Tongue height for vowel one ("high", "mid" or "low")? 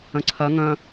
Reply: low